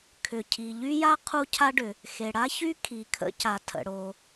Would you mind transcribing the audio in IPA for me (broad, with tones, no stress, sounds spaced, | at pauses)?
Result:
kʰ ʏ˩ cʰ i˩ ʎ y˥ j a˥ qʰ u˥ cʰ a˥ ɖ ʏ˩ | x e˩ ɽ a˥ ç y˥ kʰ i˩ kʰ ə̰˥ c a˩ tʰ ə̰˩ ɽ o˩